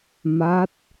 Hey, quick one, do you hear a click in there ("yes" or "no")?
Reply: no